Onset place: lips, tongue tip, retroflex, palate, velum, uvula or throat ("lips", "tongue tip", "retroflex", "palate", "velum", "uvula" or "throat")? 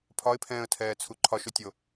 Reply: lips